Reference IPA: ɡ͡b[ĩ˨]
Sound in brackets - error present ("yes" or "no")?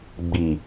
yes